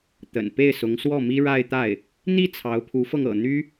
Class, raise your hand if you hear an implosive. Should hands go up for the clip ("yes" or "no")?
no